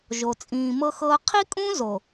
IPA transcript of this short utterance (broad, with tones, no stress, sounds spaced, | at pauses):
ʒ o˨ t͡sʼ ĩː˨ m ɤ˦ x ɤː˦ qʰ i˦ kʼ ũ˦ z o˨